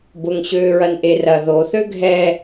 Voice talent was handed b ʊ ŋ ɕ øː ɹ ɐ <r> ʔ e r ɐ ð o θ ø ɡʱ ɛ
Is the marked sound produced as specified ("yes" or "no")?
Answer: no